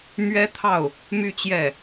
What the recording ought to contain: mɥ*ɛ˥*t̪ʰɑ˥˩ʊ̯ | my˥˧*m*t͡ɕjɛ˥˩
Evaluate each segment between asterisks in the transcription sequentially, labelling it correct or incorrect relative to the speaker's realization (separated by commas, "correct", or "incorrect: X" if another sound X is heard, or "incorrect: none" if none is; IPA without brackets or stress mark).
correct, incorrect: none